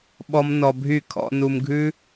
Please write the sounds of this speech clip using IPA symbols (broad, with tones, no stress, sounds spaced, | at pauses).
ɓ ɔ˦ m n ɔ˧ bʱ y˦˨ kʰ ɔ̰˧ n u˧ m ɡʱ ʉ˦